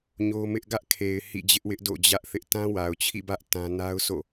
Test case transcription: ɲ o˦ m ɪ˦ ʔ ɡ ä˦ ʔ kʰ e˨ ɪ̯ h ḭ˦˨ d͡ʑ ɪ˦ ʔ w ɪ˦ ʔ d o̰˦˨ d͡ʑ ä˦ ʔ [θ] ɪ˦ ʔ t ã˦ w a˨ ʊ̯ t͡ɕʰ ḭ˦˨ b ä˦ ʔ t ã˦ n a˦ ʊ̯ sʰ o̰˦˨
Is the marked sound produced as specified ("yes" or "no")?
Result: yes